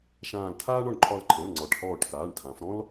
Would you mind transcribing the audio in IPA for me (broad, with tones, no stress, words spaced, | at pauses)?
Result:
ʃãː˧˩ltʰaː˥ɳɒ˧˩ɳ ǃʰɒ˧˩lǃʰɛ̃˩˧˩l ŋ͡ǀɒ˩˧ʈhɔː˧˩ʈ kaː˩˧˩ɳtʰã˩˧f ɾɔ̃˥l